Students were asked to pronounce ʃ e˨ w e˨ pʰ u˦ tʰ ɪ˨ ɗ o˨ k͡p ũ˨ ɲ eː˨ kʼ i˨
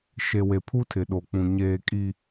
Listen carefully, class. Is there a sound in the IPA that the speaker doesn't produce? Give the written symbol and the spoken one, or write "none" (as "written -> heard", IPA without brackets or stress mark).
none